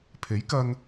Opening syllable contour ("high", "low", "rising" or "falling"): rising